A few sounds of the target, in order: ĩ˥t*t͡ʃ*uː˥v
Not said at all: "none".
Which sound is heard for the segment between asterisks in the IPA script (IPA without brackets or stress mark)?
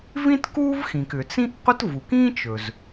k